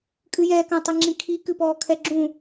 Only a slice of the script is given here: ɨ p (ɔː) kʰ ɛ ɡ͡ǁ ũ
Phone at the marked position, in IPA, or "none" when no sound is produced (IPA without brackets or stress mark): ɔː